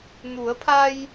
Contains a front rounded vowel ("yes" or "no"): no